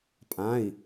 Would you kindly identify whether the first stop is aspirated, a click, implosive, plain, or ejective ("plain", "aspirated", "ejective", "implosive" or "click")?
ejective